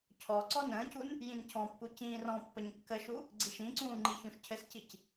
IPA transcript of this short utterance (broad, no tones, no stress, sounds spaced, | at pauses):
cʰ ɔ ǀ ɔ n ə̃ː c u n | j ĩ n cʰ ɔ̃ pː u c ĩː r ɔ̃ pː ə ɲ kː ə ʃ u | ɡ͡ǀ i ʃ ĩ ǀ ũː ŋ͡ǃ i ç ũ ʃ cʰ ɘ s c i c